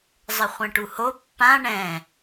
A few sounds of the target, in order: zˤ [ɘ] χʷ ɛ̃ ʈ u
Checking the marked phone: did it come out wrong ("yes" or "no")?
no